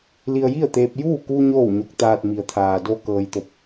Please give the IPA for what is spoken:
li˧ə̯ji˥˨ə̯t̪eː˧p̚juː˥˨ ku˧ ɲoː˥˨wɲo˧˥k̚t̪aː˧t̚ mi˩ə̯t̪ʰaː˩ do˧ kɤː˩jt̪o˧˩p̚

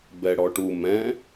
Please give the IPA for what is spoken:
bɛɽɔʈu mɛ̃

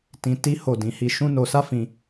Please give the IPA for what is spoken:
tĩ˧ ti˦ ho˦˨ dĩ˨˦hi˧ʃũ˦no˧ sa˦fĩ˧

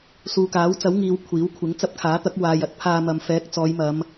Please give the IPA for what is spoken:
suː˨kaː˨˥wt͡sɐ˨˥wŋiː˨w kʷʰiː˨˥wkʷʰɪ˨˥ŋ t͡sɐ˧p̚kʰaː˨˥t̪ɐ˨˥k̚ waː˨jɐ˧t̚ pʰaː˧mɐ˨m fɛː˨˥k̚ t͡sɔː˨˧jmɐ˨˧m

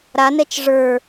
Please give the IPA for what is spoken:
ɾanɛt͡ʃ ʐə˞

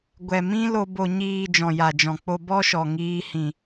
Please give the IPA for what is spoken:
ɡʷɛ˨mĩ˦lo˧ bo˨ɲiː˨ d͡ʒɔ̃˨ja˨d͡ʒɔ̃˨k͡po˧ bɔ˦ʃɔ˨ŋiː˧hĩ˨

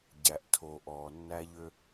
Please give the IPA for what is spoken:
ɟæ˨ʔtʰo˨ ʔɔː˨nːæ˦ʎø˦

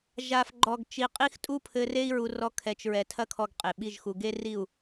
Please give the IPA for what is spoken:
ʒa˨fɡ͡ǃɔ˨ɡ t͡ʃi˨qʼi˦xtʼu˦pʰɘ˧ re˦i̯ɹu˧ rɔ˦kʰɛ˧t͡ʃ ɹɛ˨tʰɐ˦kʰɔ˧ɡ qʼe˨ɓi˦˨ʒxu˧ ɡe˦ri˦˨u̯

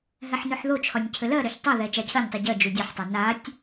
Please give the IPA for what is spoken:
ɦɛħnøħðot͡ʃʰɒnʲ cʰɘlɜɾøç tˤɛðɛ t͡ʃacʰɜnʲtˤu ɟɜd͡ʒu dʲɒħtˤa natʲ

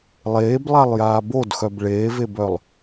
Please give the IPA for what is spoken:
lˠeːblˠalˠjaː bodxœb ɭeːvebœlˠ

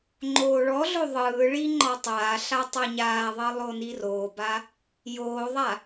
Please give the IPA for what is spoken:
ŋ͡ǃoːɭɔɮo ðˤɯːɭi ŋ͡ǃɒtˤaːɬa tˤɤɲaːðˤɤ lˠoniroːba | joːðˤa

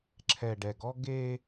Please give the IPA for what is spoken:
ǁʰɛ˨ɖɛ˨ɡɔ˦ ɡe˦

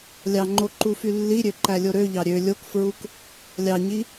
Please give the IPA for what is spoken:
lʲɑŋ͡ǃo ǃufylːiɾʲø ǃælʲoɾøʎɑ ɾʲø lʲokfɹuk | lʲɑɲi

